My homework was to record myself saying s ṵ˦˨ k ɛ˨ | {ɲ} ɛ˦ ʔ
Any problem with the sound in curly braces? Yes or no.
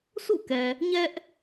no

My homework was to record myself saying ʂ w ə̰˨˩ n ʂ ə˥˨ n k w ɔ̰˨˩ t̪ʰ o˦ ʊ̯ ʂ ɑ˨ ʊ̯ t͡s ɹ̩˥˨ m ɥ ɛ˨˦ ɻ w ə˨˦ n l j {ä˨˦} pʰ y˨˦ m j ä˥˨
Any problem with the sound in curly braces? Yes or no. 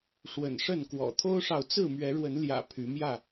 yes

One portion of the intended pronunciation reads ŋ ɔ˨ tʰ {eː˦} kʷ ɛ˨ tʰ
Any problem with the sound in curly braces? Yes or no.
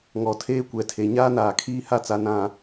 no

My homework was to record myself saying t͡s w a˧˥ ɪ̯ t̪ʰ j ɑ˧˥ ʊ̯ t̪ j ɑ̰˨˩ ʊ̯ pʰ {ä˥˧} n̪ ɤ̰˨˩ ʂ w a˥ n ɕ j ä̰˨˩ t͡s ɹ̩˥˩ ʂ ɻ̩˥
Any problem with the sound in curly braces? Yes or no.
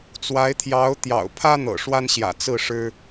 yes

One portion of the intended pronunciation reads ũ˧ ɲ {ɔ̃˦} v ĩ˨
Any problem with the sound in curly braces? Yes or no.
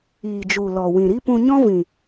no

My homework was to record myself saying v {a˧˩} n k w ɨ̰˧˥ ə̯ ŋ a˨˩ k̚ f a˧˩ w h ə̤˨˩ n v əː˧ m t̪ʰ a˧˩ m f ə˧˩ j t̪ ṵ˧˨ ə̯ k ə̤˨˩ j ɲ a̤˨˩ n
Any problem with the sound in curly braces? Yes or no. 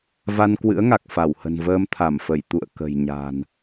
yes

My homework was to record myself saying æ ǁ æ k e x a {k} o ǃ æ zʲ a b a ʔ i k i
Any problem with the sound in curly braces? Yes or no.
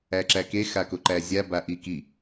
no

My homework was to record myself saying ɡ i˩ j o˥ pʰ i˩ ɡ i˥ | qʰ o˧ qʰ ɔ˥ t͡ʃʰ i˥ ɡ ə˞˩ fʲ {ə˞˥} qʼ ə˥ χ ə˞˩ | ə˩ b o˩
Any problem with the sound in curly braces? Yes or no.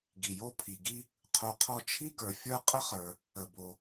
no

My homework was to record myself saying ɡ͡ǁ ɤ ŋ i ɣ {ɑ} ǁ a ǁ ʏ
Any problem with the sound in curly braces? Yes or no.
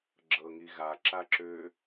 yes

